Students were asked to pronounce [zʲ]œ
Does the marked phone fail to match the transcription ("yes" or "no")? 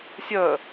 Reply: yes